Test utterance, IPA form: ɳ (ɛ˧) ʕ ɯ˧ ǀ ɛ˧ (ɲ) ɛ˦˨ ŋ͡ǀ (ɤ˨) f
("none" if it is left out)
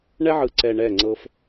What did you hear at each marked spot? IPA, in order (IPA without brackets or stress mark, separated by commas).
ɛ˦, ɳ, ɤ˦